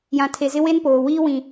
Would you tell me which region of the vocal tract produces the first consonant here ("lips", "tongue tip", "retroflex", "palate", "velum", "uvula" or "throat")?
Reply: palate